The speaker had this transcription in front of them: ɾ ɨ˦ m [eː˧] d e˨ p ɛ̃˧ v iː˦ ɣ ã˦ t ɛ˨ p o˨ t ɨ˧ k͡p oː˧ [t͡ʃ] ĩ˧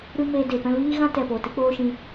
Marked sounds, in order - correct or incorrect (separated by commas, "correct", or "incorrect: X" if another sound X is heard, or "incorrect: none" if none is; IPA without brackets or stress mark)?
correct, incorrect: ʃ